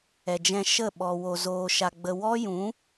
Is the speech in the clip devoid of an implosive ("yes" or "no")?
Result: no